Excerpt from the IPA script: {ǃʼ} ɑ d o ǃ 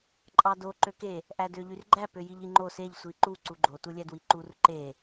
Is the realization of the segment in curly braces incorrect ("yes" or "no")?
no